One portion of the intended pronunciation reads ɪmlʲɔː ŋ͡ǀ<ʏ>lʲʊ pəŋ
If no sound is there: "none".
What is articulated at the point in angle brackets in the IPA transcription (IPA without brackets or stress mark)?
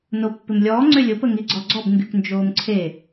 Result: ʏ